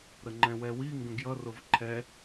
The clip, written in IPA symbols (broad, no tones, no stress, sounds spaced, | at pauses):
ɾ ə ŋ͡ǃ ɛ̃ w ɛ w i ŋ ɡ ə̃ ɡ j ʌ r ʊ v ǃʰ ɛ